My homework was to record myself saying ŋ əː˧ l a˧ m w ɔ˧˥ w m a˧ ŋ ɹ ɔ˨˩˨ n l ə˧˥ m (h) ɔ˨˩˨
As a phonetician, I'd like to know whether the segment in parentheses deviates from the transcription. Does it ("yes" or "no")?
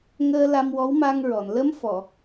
yes